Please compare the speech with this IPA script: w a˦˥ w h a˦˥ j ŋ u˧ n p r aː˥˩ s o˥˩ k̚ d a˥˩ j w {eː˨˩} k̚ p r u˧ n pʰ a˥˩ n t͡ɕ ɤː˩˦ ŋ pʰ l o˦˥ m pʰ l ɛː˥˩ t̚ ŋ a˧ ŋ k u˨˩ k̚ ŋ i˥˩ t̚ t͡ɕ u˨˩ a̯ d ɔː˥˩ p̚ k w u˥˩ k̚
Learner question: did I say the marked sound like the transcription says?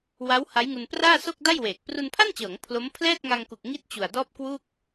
yes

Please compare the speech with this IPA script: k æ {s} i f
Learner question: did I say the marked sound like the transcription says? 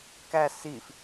yes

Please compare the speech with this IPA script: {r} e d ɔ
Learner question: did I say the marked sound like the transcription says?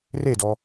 yes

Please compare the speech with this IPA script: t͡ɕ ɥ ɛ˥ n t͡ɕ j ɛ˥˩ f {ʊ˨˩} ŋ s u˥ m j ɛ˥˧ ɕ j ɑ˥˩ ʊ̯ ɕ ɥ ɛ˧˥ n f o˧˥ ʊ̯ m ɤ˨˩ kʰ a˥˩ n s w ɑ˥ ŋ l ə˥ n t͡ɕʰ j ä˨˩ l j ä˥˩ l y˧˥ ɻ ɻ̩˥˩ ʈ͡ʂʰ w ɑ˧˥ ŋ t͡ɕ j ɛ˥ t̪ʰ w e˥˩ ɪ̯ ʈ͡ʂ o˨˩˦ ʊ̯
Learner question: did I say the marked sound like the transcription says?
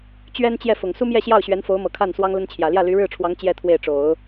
yes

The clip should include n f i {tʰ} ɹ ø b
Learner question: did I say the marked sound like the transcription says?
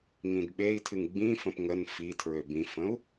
yes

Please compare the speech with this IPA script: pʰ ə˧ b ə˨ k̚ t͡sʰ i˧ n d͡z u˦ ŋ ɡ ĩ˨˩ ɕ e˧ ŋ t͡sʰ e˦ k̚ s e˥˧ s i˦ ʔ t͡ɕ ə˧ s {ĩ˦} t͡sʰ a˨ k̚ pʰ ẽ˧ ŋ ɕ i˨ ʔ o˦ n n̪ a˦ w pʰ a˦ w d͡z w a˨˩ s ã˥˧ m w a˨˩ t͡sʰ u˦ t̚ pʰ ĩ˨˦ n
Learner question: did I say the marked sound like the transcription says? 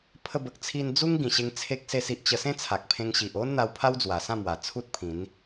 no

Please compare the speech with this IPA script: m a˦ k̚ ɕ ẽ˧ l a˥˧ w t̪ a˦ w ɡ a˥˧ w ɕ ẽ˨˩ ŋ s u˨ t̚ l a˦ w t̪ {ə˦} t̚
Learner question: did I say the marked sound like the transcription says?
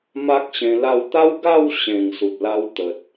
no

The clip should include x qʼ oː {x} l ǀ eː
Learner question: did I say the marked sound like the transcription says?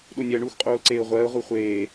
no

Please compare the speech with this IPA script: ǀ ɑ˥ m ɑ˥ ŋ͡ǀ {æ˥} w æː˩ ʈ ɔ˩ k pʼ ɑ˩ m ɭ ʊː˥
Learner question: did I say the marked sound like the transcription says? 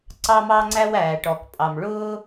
yes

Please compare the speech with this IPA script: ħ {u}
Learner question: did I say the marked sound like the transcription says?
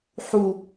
yes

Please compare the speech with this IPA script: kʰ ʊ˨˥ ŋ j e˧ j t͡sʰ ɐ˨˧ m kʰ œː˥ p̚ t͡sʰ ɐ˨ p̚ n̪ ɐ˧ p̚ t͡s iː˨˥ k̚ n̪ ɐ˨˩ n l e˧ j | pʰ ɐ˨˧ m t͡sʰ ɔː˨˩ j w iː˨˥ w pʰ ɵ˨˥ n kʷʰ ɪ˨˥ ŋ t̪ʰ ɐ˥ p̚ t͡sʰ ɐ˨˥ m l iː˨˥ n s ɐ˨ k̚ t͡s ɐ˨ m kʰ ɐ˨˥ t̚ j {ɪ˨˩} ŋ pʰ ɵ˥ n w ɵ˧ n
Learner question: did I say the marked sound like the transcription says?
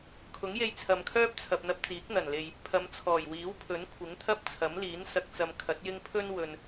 no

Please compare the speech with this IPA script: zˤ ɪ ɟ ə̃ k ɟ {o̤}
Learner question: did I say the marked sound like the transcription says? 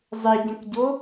no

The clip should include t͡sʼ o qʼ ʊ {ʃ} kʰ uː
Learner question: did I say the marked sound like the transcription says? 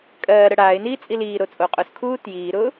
no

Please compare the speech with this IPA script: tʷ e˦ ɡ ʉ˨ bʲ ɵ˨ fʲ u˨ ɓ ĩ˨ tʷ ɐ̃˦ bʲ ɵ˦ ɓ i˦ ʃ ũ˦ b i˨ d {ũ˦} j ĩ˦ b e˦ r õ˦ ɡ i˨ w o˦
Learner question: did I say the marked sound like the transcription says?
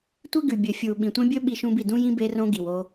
yes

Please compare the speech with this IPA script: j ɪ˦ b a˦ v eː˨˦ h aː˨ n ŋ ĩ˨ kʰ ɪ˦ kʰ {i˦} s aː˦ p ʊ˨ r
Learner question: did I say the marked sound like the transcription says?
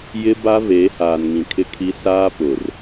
yes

